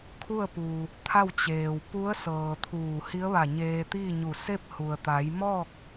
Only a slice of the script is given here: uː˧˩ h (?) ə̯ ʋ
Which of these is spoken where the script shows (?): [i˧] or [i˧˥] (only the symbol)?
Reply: i˧˥